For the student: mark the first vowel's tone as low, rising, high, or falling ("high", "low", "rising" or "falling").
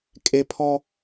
high